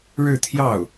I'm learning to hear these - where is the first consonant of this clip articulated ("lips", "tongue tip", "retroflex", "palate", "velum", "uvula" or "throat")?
retroflex